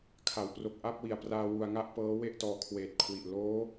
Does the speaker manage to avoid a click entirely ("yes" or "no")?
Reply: yes